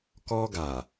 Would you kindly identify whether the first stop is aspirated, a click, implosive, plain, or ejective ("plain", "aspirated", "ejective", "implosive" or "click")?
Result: plain